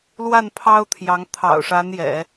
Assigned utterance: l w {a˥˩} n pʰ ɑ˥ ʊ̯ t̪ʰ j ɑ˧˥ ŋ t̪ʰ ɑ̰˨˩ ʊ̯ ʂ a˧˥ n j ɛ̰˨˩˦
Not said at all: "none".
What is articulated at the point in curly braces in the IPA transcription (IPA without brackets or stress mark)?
a˥˩